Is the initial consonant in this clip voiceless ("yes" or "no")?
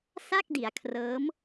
yes